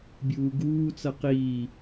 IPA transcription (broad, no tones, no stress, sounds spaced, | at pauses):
bʲ uː ɡ uː t͡s ʌ q iː